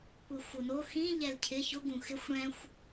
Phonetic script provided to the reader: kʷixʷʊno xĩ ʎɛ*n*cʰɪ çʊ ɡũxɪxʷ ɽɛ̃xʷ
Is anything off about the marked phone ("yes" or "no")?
yes